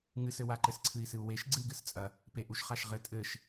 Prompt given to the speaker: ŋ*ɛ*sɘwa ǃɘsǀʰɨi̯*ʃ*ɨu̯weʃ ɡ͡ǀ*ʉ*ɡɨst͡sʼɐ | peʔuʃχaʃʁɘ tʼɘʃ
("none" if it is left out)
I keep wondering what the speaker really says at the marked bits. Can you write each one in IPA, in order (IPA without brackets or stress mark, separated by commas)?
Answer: ɨ, s, ɨ